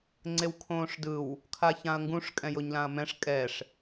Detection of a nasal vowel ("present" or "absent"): present